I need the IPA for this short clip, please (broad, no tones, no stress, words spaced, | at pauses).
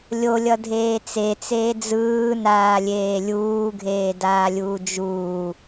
lʲolʲʌdʱeː t͡set͡seː d͡zɯːnaːlʲeː lʲuːɡʱeːdaːlʲuː d͡ʒuː